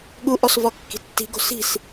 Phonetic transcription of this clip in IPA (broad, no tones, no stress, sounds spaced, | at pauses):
ɠ u ʔ ɔ s v ɔ kː i̤ tː i̤ ɡ o̤ s i̤ s